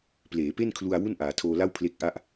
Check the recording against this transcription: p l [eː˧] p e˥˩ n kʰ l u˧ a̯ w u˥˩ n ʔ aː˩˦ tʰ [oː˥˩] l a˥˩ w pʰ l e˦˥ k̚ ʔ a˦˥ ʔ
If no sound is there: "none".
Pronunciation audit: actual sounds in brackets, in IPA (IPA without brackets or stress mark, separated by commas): eː˩˦, oː˧